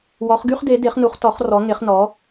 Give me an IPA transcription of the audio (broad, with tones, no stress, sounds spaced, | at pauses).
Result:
w ɔ˨˦ χ ɡ y˦ χ d e˨˦ d e˨˦ χ n u˨˦ χ t ɔ˨˦ χ r ɔ˨˦ ŋ e˨˦ χ n ɔ˨˦